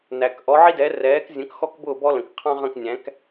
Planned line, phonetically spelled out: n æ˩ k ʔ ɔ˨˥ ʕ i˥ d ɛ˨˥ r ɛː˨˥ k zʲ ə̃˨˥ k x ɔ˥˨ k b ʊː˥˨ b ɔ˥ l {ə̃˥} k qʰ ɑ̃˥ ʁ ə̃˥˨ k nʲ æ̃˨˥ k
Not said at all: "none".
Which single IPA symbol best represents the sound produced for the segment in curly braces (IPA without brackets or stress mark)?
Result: ə̃˩